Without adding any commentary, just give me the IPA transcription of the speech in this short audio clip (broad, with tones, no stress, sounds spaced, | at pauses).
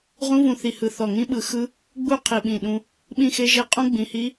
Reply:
ʁ ũ˦˥ v ũ˧ θ i˧˩ h ɯ˧˩ θ ɔ˧˩ ŋ ĩ˦˥ ɓ ɯ˧ x ɯ˦˥ | ɡ͡b u˥˨ qʰ i˧˩ ɓ ĩ˧˩ ɗ ũ˧ | ɓ ĩ˥˨ x e˦˥ ʒ e˥˨ qʼ ũ˦˥ ɡ͡b ĩ˧˩ h i˦˥